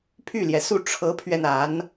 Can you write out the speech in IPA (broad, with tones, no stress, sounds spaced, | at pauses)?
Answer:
pʰ y˥˩ l j ɛ˩ s u˥˩ ʈ͡ʂʰ ɤ˧˥ pʰ ɥ ɛ˧ n a˧˥ n